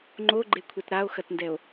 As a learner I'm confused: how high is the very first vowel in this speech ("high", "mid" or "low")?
mid